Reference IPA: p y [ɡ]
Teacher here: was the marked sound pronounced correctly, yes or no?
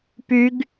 yes